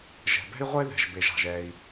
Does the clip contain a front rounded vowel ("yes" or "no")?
no